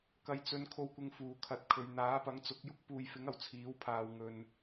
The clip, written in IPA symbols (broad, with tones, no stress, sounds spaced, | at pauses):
k ɐ˨ j t͡s ɵ˨˧ n kʰ o˧ w kʷ ɪ˧ ŋ f uː˨˩ kʰ ɐ˨ t̚ kʰ ɵ˨ ɥ n̪ aː˨˥ p ɐ˨˥ ŋ t͡s ʊ˨˥ k̚ j ʊ˥ k̚ p uː˨ j f ɪ˨˥ ŋ ɐ˨˩ w t͡sʰ iː˨˥ w pʰ aː˨ w ŋ ɵ˨ n